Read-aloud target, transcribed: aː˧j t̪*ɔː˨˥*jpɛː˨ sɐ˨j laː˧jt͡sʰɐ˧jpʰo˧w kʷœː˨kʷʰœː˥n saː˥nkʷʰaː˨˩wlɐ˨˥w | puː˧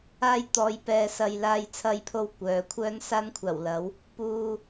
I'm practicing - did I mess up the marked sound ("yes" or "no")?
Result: yes